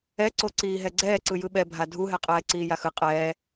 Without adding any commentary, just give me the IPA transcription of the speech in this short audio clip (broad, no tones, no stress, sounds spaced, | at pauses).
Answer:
ɛ ǀ o ǀ iː ɦ ɛ ɡ͡ǀ ɛː ǀ ɯ j ɯ ɓ ɛ bʱ a dʱ u ɦ ɛ qʼ ɛː ǀ iː j a x ɯ qʼ ɛː